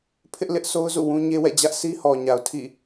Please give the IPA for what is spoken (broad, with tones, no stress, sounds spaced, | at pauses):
pʰ ɪ˦ ʔ l ɪ˦ ʔ s o˦ ʊ̯ z ṵ˦˨ w ũ˦ ɲ e˦ w ɛ̰˦˨ d͡ʑ ä˦ ʔ s i˦ h ɔ˨ ɲ a˨ ʊ̯ tʰ ḭ˦˨